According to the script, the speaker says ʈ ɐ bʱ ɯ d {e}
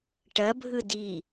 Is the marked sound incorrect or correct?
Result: incorrect: i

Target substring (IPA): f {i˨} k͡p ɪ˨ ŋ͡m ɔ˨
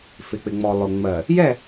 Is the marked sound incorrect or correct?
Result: incorrect: ɪ˨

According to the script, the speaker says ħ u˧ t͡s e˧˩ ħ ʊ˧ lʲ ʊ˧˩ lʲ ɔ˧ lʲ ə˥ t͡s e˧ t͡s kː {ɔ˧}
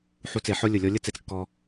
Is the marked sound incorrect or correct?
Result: correct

